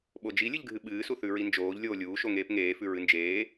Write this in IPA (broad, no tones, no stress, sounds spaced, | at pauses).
ɓ o d͡ʒ i lʲ ɨ ʎ ɡʱ ɨ ɓ ɨː s u θ ʉ ɹ i n d͡ʒ oː ʎ lʲ oː lʲ uː ʃ o ŋ eː p ŋ eː f ʉ ɹ ɨ n d͡ʒ eː